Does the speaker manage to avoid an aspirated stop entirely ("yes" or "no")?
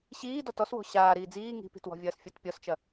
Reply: yes